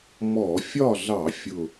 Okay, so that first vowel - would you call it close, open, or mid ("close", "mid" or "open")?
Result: mid